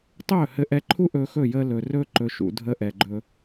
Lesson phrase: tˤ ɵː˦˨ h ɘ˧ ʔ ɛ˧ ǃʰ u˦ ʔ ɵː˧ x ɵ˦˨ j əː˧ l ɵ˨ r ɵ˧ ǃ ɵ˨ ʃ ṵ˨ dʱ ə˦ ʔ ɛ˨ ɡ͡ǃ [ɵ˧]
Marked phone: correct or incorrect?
correct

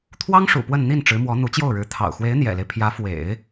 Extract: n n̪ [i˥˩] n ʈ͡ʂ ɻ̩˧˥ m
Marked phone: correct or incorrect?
correct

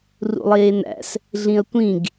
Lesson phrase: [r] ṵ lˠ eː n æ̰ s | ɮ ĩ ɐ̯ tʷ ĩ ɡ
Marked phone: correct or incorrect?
correct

